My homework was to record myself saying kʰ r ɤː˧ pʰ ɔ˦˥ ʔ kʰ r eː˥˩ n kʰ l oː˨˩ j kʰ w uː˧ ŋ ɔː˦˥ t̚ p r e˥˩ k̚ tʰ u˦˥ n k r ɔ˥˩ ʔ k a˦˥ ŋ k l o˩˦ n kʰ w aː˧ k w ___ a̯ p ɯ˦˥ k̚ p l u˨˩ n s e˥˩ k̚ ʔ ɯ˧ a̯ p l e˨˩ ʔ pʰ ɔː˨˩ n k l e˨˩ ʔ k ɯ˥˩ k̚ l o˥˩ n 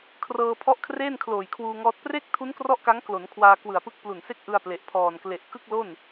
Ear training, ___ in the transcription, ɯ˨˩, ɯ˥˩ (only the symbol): ɯ˨˩